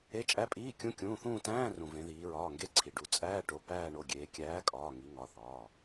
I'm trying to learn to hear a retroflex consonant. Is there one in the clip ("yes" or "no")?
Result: yes